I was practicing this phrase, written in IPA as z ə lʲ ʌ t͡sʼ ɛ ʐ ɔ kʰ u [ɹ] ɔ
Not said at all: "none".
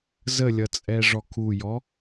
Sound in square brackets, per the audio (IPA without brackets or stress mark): j